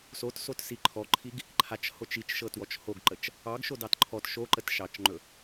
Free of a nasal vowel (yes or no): yes